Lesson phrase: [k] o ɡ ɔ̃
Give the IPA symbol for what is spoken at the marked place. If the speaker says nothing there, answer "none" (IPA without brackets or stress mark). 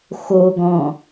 x